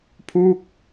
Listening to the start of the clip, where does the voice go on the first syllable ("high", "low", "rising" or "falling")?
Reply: falling